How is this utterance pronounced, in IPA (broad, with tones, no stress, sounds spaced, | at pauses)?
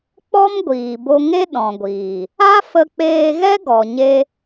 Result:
k͡p ɔ˦ m ɡʷ iː˨ b o˧ ŋ e˦ ɗ ɔ̃˨ ɡʷ iː˨ | a˦ f ə˧ k͡p eː˧ ɣ ɛ˦ ɡ ɔ˨ ɲ e˦